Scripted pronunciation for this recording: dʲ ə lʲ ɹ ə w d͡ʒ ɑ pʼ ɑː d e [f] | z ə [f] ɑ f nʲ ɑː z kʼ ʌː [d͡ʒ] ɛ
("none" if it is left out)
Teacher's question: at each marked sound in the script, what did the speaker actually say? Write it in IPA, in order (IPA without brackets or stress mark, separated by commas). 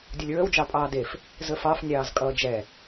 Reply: f, f, d͡ʒ